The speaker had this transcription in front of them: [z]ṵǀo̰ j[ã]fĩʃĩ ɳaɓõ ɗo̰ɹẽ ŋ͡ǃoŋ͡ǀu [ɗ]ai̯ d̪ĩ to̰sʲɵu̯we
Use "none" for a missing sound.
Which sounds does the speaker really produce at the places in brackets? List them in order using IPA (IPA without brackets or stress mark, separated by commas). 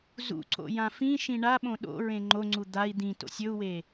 z, ã, d̪